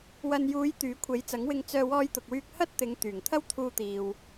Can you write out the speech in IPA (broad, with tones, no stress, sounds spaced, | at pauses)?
w ɐ˨ n j uː˨˧ j t̪ yː˨˥ kʷʰ e˨˥ j t͡s ɐ˨˥ ŋ w ɪ˧ ŋ t͡s œː˧ w ɔː˧ j t̪ ʊ˨ k̚ w yː˧ k̚ h ɐ˥ t̚ t̪ ɪ˨˧ ŋ t̪ yː˨˩ ŋ t̪ʰ ɐ˥ w t̪ʰ uː˧ t̪ iː˨ w